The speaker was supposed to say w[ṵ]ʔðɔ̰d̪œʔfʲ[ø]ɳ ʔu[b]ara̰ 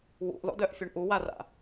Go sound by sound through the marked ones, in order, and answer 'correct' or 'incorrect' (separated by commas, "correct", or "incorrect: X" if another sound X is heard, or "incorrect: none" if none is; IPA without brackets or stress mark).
correct, correct, incorrect: w